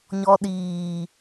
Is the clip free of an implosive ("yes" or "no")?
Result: no